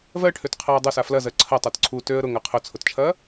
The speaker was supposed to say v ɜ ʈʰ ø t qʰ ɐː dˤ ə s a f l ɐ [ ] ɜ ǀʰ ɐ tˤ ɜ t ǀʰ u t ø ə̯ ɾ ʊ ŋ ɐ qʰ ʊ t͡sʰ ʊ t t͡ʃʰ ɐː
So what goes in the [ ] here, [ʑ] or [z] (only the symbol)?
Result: z